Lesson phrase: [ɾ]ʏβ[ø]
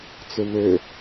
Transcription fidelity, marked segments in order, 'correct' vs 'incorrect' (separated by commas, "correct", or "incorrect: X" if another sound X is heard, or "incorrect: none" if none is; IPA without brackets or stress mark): incorrect: t͡s, correct